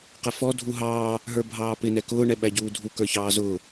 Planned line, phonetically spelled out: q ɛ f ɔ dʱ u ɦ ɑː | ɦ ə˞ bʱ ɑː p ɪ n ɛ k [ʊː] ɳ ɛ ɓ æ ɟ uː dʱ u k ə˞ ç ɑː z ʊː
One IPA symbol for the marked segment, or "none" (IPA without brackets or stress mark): ʊː